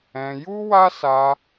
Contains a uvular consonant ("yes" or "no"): no